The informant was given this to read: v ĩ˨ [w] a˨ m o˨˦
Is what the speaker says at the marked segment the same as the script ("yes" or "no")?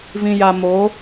no